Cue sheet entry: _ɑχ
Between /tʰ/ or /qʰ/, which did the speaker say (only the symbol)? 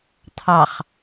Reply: tʰ